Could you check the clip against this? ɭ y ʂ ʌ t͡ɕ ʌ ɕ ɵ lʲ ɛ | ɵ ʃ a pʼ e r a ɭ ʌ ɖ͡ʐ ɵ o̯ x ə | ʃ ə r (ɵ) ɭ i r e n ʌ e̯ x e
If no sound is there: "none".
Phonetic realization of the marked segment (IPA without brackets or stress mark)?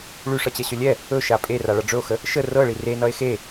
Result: ɤ